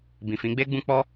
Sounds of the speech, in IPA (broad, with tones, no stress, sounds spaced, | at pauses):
b ĩ˨ f ĩ˨˦ ɡ͡b e˦ ɡ͡b ũ˦ k͡p ɔ˦